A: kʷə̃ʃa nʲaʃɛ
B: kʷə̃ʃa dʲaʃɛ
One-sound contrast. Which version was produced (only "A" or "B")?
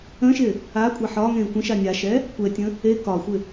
A